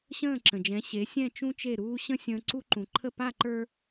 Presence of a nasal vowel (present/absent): present